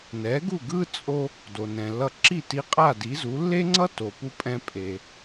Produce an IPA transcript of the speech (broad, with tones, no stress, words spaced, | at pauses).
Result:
nɛ˩˥ɡu˥˩ ɡɯ˥ t͡sʼo˧ | do˩nɛ̃˩lːʌ˧ ǁi˥˩ti˧qʼa˥˩ di˩˥zu˩˥ lːe˥ŋ͡ǀʌ˥ to˩ pu˧pʼɛ̃˧ pʼe˩